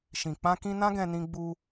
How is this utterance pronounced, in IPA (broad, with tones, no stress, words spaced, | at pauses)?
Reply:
ʃĩ˨k͡pã˧kĩ˧ nã˦ɡɛ̃˧nĩ˧ɡ͡bu˧